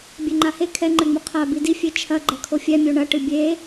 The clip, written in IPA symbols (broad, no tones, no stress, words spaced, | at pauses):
bʲeŋ͡ǃahe kʰɛŋ͡ǃɘŋ͡mu qʰa bidi fʲet͡ʃʰɐ ɡ͡ǃɐkʰofʲɛ mʲoɳɐ ʈɨbʲe